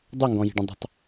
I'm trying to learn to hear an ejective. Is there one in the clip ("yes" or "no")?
no